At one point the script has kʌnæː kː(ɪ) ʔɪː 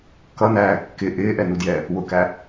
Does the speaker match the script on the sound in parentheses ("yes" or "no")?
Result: yes